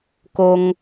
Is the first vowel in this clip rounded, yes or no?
yes